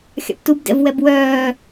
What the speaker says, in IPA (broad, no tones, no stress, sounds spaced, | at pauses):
xʲ ɑ̰ p t u b d ɛ̰ v w ɛ b w œː